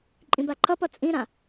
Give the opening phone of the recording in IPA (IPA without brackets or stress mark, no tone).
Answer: ǃʼ